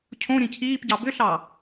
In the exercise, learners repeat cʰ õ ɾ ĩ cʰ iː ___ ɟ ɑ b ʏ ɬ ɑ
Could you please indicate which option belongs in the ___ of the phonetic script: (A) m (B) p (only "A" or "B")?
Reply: B